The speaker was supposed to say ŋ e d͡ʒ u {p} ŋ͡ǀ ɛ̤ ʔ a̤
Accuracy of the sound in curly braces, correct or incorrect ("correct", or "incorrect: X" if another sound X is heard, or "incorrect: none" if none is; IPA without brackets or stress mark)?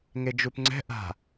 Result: correct